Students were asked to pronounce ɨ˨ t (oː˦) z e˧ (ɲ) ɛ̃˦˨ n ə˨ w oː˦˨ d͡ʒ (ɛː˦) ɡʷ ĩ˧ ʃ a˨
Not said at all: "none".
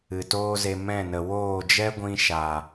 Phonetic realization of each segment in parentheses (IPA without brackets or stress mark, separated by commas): oː˦, m, ɛ˦